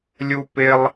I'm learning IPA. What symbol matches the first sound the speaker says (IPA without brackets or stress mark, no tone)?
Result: lʲ